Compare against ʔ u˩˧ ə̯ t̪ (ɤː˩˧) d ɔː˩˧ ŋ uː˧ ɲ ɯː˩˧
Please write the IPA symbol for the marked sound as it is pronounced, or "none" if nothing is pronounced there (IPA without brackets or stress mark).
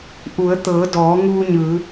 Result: ɤː˩˧